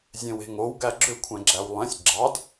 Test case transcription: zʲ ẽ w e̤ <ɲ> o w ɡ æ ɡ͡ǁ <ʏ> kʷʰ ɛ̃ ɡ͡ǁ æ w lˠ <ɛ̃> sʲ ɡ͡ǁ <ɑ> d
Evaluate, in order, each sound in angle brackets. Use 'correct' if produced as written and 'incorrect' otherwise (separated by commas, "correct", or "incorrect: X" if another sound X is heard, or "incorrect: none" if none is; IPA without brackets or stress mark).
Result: incorrect: ŋ, correct, correct, correct